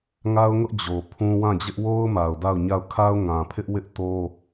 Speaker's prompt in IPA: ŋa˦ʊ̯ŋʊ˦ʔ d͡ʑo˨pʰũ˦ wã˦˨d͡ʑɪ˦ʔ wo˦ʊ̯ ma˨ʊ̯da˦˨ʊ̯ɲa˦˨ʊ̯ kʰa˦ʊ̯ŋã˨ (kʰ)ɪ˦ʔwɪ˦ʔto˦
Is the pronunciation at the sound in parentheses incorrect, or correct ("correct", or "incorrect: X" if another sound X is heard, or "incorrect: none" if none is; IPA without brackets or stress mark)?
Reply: incorrect: pʰ